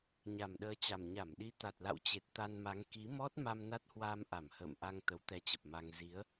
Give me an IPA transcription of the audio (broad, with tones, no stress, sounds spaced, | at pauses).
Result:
ɲ a˨˩ m ɗ əː˨˦ t͡ɕ a˨˩ m ɲ a˧˩ m ɗ i˨˦ t̪ a˨˩ t̚ l a̰˧˨ w t͡ɕ e˨˩ t̚ t̪ a˧ n m a˨˦ ŋ k i˨˦ m ɔ˦˥ t̚ m a˧ m n a˦˥ t̚ h w aː˧ m ʔ a˧˩ m h ə̰ː˧˨ m ʔ a˧ ŋ t̪ ə˨˦ w t̪ ɛ˧ t͡ɕ ə˨˩ p̚ m a˧ ŋ z i˨˦ ə̯